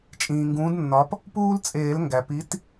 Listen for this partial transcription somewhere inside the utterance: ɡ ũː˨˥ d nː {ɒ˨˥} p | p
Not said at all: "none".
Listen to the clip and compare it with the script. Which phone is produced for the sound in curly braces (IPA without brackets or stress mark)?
ɒ˨˥